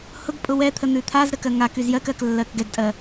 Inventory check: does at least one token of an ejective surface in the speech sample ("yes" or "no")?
yes